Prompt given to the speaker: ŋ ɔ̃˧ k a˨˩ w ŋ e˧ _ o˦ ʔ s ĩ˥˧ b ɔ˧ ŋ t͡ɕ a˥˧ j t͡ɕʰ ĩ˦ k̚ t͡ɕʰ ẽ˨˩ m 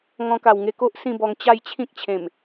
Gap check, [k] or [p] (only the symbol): k